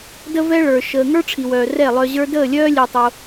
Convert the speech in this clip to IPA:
də˦vɛ˦ɭə˞˨ ʃəː˨ ŋə˞˦ʈ͡ʂʰi˨wœː˨ rɛ˦˨lˠœ˧ʑə˞˦ dəː˦˨lʲœː˦ lʲe˧tˤo˧

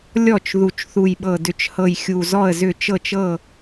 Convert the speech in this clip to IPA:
lʲɔ˥˩t͡ʃ ðu˨˩t͡ʃθu˨˩jɓɤ˨˩ dʏ˨˩t͡ʃhɤ˨˩j xʲu˨˩zɔ˥˩ə̯zʏ˥˩ t͡ʃɤ˥˩t͡ʃɤ˥˩

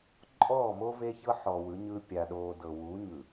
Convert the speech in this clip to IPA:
ǃʼɔː˦˨mo˦ve˦çɤ˦ ħɔ˨wɯ˨˦ɲɯ˦ pʲa˨ɗoː˨dɤ˨ wu˨˦ɲɯ˨

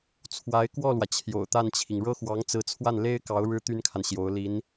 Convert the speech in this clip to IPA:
t͡sʰwa˧˥ɪ̯ kwɔ˥˩lwä˩ t͡ɕʰjo̰˨˩ʊ̯t̪a˥˩nt͡ɕʰi˩ŋ ɻɤ˥xwɑ˧˥ŋ t͡sɹ̩˧˥t͡sʰwa˥˩nle˥ɪ̯kɑ˧˥ʊ̯ ɻɻ̩˥t̪y˥nkʰa˨n ɕjo˧˥ʊ̯ li˧˥n

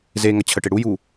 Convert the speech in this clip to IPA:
ze ŋɐt͡ɕʰəʈe ɽuju

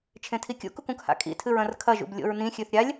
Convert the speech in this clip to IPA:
t͡ʃʰẽtʰikʲṵkuk ũkha̰kʼḭtʰɨɹ ɐ̃rkʰɐʒṵb lʲo̰ɹnĩxʲʉθ ɾʲalʲ

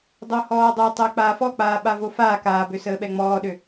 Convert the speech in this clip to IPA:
dˤohɔːdˤotˤəː k͡paːfɔk͡paː ɓavofaː kaːbø səːɓɛŋ͡mɔːɗø

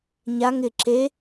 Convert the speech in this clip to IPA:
ɲaŋ ɪ ǁe

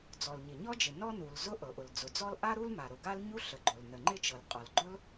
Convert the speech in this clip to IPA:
d͡zɔ˩lɲɪ˩ɲɔ˥d͡ʒɪ˩ nɔ˥nu˩l zʊ˥ ʔɤ˩ʔʊ˩ld͡zʊ˩d͡zɔ˥l ʔa˥ɾu˥l ma˩ɾʊ˩ɡa˥lɲu˥ ɬə˩ɡ͡ǃʊ˩l nə˩ŋ͡ǃɪ˥t͡ʃɤ˩l qʼɔ˩lɡ͡ǃʊ˥l

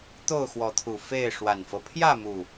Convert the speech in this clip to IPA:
t̪o˥˨ʊ̯xwɔ˨˦t̪ʰu˨˩ fe˥˨ɪ̯ ʂwa˨˩nfɤ˦ pʰjä˥˨mu˨˩

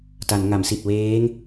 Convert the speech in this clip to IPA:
ta˩˦nŋa˩˦msi˨˩t̚ weː˦˥ŋ

